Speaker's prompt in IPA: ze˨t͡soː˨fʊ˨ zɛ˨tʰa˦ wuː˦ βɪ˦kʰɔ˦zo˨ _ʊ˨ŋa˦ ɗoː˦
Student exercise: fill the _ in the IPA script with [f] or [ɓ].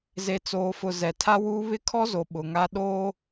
ɓ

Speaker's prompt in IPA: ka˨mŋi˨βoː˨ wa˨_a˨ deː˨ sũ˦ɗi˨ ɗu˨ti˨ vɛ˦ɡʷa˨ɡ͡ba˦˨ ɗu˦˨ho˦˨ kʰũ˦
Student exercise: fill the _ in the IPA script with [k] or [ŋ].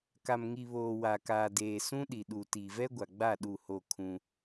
k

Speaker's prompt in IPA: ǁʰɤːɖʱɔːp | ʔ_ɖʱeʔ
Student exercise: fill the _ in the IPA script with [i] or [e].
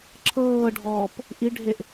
i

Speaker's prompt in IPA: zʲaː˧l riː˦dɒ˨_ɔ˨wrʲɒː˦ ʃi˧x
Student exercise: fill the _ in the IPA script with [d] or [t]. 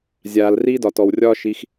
t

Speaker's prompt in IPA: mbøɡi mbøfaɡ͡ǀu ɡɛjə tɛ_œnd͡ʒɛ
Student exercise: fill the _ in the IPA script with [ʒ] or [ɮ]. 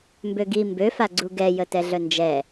ɮ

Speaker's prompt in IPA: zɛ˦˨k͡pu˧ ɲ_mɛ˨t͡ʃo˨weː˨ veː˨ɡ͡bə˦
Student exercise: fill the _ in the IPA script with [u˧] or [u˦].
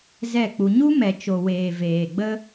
u˦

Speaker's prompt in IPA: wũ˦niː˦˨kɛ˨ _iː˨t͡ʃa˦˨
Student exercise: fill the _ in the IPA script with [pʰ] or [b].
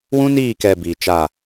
b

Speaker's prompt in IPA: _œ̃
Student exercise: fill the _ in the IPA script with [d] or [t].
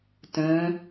t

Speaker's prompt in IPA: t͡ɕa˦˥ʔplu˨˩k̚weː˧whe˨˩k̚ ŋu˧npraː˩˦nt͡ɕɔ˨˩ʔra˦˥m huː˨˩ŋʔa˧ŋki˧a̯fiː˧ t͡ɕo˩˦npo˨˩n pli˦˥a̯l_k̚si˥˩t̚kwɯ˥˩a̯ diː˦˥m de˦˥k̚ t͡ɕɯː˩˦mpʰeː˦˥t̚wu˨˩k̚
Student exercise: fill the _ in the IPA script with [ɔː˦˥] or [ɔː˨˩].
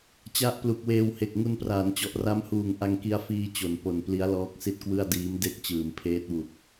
ɔː˦˥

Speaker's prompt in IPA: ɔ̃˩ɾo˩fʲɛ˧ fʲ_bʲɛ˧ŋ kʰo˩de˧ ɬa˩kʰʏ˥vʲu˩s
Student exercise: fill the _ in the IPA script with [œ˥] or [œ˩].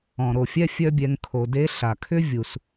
œ˥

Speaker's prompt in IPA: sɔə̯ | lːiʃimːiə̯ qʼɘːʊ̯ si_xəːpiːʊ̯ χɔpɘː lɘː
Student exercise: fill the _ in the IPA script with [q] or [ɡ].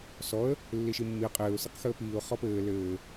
q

